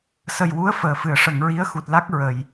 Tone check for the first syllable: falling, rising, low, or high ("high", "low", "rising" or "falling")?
low